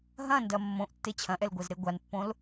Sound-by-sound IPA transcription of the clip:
ɦ ɐ̃ n d ɐ mː õ ʔ tː e t͡ɕʰ ɐ̃ ʔ ɛ l ɡʷ ɛ z ɾ e ɡʷ a n pː õ l

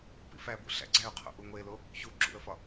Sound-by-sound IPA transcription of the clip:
p ḭ f æ b ṵ ɬ æ̰ ɡ͡ǀ æ ʊ̯ qʰ o̰ ʔ u ŋʷ e l o | ç u ɡ͡ǁ ṵ ə̯ f ɒ

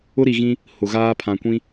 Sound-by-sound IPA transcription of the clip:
ʊ˦ ɾ i˨ ɣ ĩ˦ | h ʊ˨ ɣ aː˦ pʰ ã˨ kʷ ĩ˦

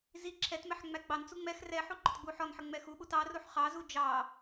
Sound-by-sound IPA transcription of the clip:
z i ǁʰ ɛ t m ɛ ħ ŋ͡m æ ɡ͡b ɑ n t͡s u ŋ͡m ɛ x r ɛ ħ u ɡ͡ǃ ʊ t ɡ͡b u ħ ɔ n ħ ə ŋ͡m ɛ x u ɓ u t ɑ r u ħ χ ɑ z u d͡ʒ ɑ

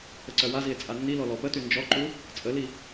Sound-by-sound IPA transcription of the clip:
ə ǀ œ w a z i e̯ t͡sʼ a nː i l ɔ l ɔ p ə t y n d͡ʒ ɔ ǃ u | t͡sʼ ə l i

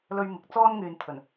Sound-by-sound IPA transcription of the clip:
l ɵ˥ ɥ m ɪ˧ k̚ t͡s ɔː˥ n ŋ yː˨ n t̪ʰ ɵ˨˩ n

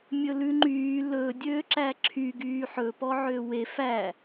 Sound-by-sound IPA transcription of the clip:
mʲ ɵ l ʉ ŋ͡ǃ yː l ɵː dʲ øː ǁ æ ǁʰ y ɡ yː ħ ɵ p ɔ ʕ øː w e f æ

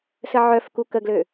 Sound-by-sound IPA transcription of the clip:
s ə ʕ œ f k u k ə ɡ l ø

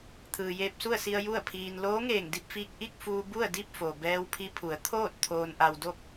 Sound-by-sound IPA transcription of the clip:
t̪ʰ ɯː˩ j eː˧ p̚ s u˥˨ ə̯ s i˧ ə̯ j u˥˨ ə̯ pʰ iː˧ n l oː˧˥ ŋ eː˧˩ ŋ d i˥˨ p̚ f iː˧ k̚ ʔ i˥˨ k̚ f uː˧ b u˥˨ ə̯ d i˥˨ p̚ f o˩ b ɛː˧ w pʰ i˧ pʰ u˩˧ ə̯ t̪ʰ oː˥˨ t̚ t̪ʰ oː˧ n ʔ a˧ w d o˥˨ p̚

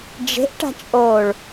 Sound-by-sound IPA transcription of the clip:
d͡ʒ e̤ ʔ ʈ a̤ t͡ʃʼ oː ɭ

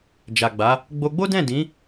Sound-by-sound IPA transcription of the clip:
d͡ʒ a˨ ɡ͡b a˨˦ | ɡ͡b o˧ ɡ͡b o˦ d ɛ̃˦˨ d ĩ˨˦

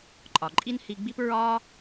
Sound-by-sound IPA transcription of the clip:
ǃʼ ɒ˩ ǃʼ i˥ n h i˧ ɡ͡b i˥ p ɹ ɒ˥

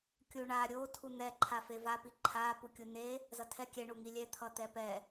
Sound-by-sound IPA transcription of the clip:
kʲ u ɳ a ɾʲ o tʰ u n̪ ɛ ǃʰ a f e v a p i ǃʰ a p u kʲ u n e | z ʌ tʰ ɛ kʲ ɛ ɳ u ŋ i lʲ ɛ t̪ʰ ʌ t̪ ɛ p ɛ

